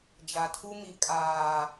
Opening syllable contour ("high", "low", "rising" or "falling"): low